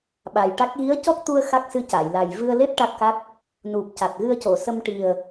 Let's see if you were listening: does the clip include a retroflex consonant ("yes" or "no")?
yes